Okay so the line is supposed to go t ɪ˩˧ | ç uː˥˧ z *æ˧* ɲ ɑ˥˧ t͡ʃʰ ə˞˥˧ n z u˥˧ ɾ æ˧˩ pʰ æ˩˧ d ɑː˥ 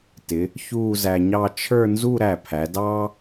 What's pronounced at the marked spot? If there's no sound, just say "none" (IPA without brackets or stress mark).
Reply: æ˧